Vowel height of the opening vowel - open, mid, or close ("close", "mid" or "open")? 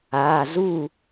open